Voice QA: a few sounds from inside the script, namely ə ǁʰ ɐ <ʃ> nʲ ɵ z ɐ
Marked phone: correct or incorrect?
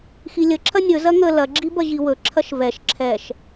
incorrect